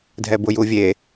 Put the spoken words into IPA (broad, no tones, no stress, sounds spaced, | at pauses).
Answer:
dʱ ɛ b ʊ j u vʲ e